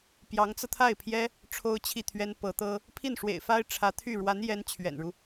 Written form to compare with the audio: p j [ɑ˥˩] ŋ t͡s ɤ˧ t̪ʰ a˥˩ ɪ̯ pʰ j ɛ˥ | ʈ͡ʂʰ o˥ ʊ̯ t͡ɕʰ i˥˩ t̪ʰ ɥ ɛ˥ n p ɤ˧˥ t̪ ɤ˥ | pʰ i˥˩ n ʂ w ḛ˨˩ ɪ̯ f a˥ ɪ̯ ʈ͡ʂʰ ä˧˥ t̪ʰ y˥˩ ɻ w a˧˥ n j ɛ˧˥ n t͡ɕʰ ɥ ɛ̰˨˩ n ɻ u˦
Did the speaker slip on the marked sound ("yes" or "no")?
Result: yes